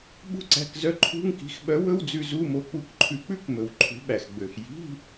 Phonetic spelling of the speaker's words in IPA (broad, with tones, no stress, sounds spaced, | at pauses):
ɓ ṳ˥˧ ǀ æ̤˧˥˧ k z œ˥˧ ǃʰ ṳ˧˥˧ ŋ k i̤˨˥ x ɓ œ˨˥ w ɵ˧˥˧ w d͡z ʉ˧ z u˧˥˧ m o˧ k͡p u˨˥ k ǃʰ ʉ˧˩˧ k͡p ʉ˥˧ k m ɵ˨˩ w ǃʰ ṳ˨˥ ɓ æ˨˩ x ɡ͡b ø˨˩ x j i̤˧˥˧